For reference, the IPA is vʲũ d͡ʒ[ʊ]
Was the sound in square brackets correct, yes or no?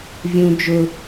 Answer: yes